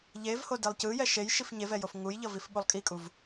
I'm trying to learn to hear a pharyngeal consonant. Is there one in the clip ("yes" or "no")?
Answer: no